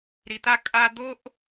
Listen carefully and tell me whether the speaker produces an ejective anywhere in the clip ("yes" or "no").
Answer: yes